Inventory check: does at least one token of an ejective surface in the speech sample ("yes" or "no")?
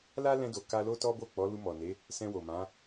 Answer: no